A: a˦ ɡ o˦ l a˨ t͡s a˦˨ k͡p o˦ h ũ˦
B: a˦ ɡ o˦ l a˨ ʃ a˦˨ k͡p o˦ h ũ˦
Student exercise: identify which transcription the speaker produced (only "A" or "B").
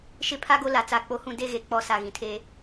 A